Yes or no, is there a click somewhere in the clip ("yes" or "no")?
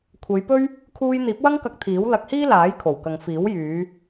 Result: no